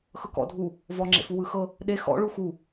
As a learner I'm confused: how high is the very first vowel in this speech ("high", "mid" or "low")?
mid